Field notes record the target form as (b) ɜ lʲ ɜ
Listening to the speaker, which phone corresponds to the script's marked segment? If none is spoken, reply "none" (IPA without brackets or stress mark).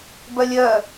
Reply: b